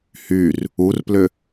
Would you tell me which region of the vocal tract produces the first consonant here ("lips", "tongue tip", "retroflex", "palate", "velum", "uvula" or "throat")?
throat